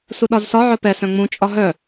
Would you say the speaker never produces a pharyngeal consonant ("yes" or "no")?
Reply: no